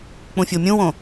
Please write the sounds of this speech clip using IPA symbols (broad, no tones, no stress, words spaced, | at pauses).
k͡pũfʲomʲũwõ